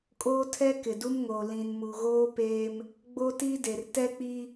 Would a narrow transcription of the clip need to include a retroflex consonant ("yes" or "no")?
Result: no